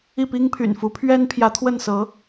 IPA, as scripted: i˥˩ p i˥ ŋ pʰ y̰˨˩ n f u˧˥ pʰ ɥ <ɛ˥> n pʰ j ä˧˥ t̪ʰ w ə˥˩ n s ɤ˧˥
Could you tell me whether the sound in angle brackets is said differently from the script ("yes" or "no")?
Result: no